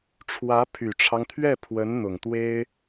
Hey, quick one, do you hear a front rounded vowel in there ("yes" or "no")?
yes